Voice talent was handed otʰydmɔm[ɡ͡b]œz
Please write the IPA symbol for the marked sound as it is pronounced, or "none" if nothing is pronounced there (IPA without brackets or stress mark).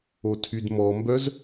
b